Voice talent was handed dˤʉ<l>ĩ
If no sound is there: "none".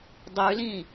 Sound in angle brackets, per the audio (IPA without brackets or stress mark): l